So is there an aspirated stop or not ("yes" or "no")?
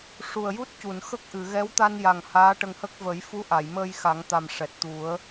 no